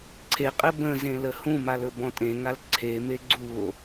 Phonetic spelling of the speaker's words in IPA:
ǀʰeqʼɘ bə̃zẽ ləhũmal ɵbɔ̃tʼẽŋal ǀʰeme ɡ͡ǀuo̯

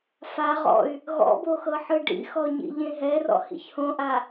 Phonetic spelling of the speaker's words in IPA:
fa ʁɔ̰y̯ | ɣɔ̰boxɤħɯ ɖḭxɔɲḭ ʎẽɦɛrɔ̰ hḭçhõʔa

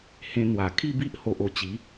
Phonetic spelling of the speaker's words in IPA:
hẽ˧n̪wa˨˩ kʰi˥˧bi˦ʔ ho˨ʔo˧t͡ɕi˨˦

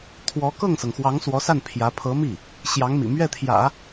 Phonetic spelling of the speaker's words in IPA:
t̪ʰwɔ˧˥ kɤ˥˩ŋsɤ˩ŋxwɑ˧˥ŋ swɔ˧˥sa˥˩n pʰjä˧˥ pʰɤ˧˥mi˥˩ | ɕjɑ˧˥ŋmḭ˨˩ mɥɛ˥˩t̪ʰjä̰˨˩˦

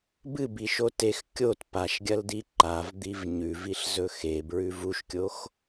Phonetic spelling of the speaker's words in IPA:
bɨbiʃo tex kʲot paʃɡʲɐldi ǃavd̪iv ɲʉviɬzɵ xebɹʉv uʃkʲox

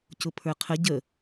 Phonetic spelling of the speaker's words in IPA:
cʊpʰə˞qʰə ɟə

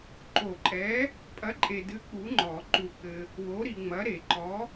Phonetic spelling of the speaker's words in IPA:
ǃo˨˩˦ǃʼɛ˨˥ | pʼɐ˨˥ǃʼe˨dɨ˨˥ k͡pu˨˥ŋ͡ǃɔ˨˩˦ ǃu˨kɘ˨ | wo˨˥ɾi˨ŋ͡mɐ˨˥ ɾe˨˩˦ǃɔ˨˥

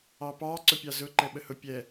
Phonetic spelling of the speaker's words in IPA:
ɑpɑ ǀʊpʲɑzʊ ǃɛɓəhʊ pʲɛ

